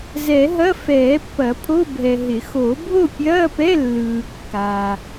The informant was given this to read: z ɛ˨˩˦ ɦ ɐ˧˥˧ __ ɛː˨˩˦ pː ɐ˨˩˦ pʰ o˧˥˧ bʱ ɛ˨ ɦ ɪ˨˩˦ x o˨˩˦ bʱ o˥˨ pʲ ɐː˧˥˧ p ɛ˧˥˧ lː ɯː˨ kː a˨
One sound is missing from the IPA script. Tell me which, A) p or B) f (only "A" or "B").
B